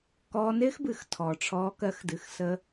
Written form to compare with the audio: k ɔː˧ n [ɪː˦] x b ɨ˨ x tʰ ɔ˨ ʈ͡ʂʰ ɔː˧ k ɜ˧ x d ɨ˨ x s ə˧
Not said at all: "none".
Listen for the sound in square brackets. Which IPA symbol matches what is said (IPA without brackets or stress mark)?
ɪː˦